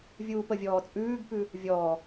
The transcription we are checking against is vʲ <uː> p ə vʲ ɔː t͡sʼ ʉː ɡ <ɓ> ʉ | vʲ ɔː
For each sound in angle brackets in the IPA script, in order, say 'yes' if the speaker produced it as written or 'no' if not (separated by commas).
yes, no